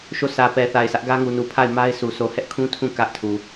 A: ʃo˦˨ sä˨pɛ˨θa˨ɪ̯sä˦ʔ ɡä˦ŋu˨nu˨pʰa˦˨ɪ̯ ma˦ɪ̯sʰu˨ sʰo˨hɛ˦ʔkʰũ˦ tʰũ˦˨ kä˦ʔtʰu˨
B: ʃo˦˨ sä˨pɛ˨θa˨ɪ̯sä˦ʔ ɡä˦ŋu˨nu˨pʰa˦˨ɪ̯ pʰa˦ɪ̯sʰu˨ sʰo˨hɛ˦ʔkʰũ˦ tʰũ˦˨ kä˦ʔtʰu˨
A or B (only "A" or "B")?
A